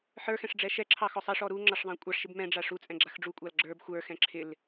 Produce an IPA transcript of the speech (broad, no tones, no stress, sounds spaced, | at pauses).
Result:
ħ ə˞ x ɛ̃ ʂ ɖ͡ʐ ɛ ʃ ɛ ǁʰ ɑ x ɔ sˤ ɑ ʂ ɔ ɾ u ŋ͡ǁ ɑ ʂ ðˤ ɑ̃ kʷʼ ɑ ʂ ʃ ɪ b m ɛ̃ ɖ͡ʐ a ʂ u t͡sʼ ɛ̃ ɡ͡ǁ a x ɖ͡ʐ u kʷʼ ɑ l ɡ͡ǁ ə˞ b xʷ ə˞ x ɛ̃ ǁʰ ɪ l